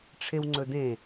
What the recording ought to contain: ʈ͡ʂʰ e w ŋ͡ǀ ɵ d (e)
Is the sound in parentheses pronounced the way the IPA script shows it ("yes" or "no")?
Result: no